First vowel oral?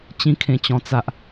no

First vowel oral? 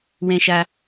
no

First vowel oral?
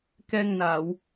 yes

